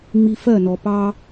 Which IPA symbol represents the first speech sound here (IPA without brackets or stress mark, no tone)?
ŋ͡m